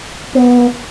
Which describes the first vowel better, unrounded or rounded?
rounded